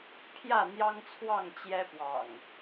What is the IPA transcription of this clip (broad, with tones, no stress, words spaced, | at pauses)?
pʰjä˥˨n̪jɑ˦ŋt͡sʰwɑ˥˨ŋ t͡ɕjɛ˦pwɑ̰˨˩ŋ